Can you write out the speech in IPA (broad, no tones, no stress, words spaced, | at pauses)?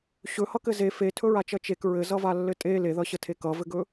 ɕɵhʌkɘ ze fetʰɵɹat͡ʃʌ t͡ʃek ɹɘzʌvalːɘ tʼe leðʌɕətʰe kʌvɘɡɵ